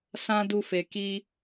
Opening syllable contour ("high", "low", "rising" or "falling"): high